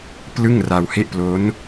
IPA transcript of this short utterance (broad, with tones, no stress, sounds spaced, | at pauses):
p l ɯ˥˩ ŋ r a˧ w h e˥˩ ʔ p l o˦˥ n